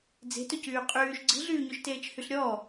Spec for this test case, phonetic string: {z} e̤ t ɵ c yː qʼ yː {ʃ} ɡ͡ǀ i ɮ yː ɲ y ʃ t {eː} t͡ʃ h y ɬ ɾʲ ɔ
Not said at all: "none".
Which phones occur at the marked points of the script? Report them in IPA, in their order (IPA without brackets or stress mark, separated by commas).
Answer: d͡z, ʃ, eː